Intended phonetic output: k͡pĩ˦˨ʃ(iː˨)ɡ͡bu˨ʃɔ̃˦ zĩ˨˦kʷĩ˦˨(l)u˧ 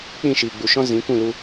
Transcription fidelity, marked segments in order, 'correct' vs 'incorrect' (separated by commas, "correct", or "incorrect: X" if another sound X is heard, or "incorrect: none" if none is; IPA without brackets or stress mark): correct, correct